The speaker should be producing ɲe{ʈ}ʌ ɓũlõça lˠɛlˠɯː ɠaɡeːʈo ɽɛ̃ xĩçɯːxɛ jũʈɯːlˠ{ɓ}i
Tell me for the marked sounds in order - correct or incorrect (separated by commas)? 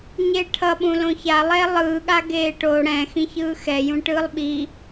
incorrect, correct